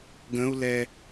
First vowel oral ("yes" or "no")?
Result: no